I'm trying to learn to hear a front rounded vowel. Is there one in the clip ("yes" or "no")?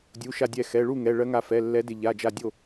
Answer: no